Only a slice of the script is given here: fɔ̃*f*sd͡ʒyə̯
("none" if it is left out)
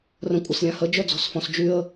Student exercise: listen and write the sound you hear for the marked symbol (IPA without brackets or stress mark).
none